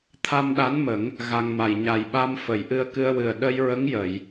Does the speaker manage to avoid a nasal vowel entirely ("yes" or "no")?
yes